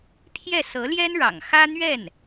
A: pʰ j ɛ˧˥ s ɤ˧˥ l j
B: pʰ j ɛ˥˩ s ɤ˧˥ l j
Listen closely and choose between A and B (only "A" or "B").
B